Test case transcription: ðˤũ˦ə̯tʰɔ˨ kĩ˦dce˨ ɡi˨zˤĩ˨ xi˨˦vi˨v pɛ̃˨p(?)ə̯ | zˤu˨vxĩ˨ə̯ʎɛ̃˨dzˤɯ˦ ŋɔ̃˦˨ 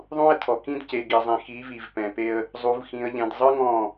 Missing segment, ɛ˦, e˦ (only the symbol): e˦